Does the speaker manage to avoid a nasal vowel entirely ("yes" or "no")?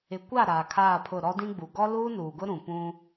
no